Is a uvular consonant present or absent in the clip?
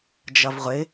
present